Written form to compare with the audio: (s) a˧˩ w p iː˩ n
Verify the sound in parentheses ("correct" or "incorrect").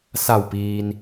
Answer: correct